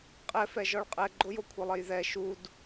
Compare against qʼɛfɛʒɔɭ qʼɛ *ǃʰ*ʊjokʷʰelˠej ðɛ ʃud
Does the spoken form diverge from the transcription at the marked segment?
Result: yes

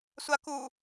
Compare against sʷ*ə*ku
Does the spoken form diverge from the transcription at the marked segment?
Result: yes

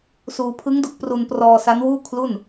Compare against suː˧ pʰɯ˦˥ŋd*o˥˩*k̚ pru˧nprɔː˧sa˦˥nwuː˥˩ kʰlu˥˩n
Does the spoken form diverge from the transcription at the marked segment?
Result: yes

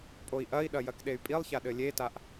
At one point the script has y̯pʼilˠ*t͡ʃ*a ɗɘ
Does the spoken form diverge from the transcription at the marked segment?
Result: yes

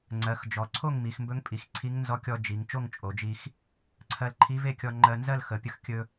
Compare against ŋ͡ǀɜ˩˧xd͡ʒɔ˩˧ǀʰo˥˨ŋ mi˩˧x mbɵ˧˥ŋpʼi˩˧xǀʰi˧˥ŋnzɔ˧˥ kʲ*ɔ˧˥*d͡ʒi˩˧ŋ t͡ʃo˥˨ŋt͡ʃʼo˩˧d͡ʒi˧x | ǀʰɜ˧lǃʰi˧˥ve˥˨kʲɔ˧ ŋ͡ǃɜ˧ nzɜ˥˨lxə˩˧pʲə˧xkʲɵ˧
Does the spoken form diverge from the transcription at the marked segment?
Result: yes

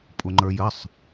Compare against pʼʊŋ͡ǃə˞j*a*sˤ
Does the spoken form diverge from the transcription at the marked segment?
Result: yes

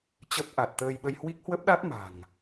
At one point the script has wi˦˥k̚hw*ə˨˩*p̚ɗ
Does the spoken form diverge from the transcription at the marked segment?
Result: yes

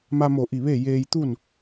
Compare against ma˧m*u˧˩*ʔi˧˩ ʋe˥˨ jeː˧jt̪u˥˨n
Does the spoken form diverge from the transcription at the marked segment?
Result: yes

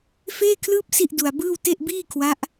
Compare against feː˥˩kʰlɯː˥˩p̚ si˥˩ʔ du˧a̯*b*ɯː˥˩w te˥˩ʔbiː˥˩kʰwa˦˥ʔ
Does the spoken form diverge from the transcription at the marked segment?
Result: no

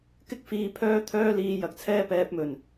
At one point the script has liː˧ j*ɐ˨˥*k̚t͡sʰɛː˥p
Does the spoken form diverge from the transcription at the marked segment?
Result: no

